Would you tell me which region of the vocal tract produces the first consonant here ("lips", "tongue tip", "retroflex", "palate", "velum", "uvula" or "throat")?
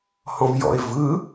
throat